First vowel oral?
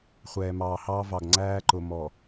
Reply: yes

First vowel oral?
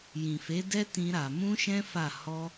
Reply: no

